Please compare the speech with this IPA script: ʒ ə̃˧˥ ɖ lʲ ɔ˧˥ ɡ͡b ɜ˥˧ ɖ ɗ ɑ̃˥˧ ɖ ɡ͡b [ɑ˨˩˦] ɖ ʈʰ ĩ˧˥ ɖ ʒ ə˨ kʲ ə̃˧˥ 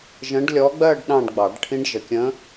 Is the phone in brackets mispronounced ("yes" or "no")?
no